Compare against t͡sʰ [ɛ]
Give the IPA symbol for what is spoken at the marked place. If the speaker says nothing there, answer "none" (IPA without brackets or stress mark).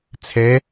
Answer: ɛ